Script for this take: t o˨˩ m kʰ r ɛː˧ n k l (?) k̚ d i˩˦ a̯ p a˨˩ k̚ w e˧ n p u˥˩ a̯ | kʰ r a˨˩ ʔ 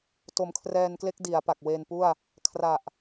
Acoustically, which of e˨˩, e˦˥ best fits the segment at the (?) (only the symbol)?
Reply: e˦˥